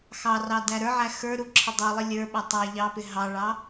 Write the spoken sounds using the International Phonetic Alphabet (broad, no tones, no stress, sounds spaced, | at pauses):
x ɑ r ɑ d æ ɾ ə˞ ʕ æ x ə˞ ɾ u ǁʰ ɪ dˤ u lˠ ɪ lʲ ə˞ ɓ æ tˤ æ ʎ ɑ p ɪ ɦ ɑ ɭ ɑ